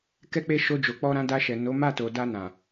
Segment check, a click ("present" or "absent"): absent